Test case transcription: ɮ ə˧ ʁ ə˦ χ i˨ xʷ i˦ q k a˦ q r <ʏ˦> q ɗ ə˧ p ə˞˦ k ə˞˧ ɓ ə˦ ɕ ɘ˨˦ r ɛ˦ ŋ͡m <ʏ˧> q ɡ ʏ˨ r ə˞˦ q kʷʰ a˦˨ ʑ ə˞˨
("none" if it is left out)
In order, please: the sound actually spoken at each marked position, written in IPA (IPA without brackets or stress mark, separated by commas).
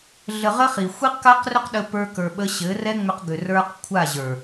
ʏ˦, ʏ˧